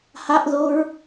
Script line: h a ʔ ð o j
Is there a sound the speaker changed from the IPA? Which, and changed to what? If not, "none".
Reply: j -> ɹ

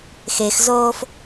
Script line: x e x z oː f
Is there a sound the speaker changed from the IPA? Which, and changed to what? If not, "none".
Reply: none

